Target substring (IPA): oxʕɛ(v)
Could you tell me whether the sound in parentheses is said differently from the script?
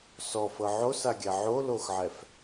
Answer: yes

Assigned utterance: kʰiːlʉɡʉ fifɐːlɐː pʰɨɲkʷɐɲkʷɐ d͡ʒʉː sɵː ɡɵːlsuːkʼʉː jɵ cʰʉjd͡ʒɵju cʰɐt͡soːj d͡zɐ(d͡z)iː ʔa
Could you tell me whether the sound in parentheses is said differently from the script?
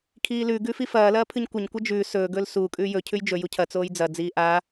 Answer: no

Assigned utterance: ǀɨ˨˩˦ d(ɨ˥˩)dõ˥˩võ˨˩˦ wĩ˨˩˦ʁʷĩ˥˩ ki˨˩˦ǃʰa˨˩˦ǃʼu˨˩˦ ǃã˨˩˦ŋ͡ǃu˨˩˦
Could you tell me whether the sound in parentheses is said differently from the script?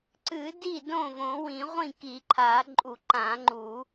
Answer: yes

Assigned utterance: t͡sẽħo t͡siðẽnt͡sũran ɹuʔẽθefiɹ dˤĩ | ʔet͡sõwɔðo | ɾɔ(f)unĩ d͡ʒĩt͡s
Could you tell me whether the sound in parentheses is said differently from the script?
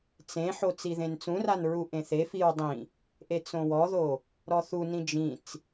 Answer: yes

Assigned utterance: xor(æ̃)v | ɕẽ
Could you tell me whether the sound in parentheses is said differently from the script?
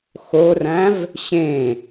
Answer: no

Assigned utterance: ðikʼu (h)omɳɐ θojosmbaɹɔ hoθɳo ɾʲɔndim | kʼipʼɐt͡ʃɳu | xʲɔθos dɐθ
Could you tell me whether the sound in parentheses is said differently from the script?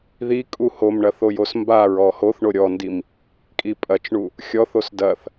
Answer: no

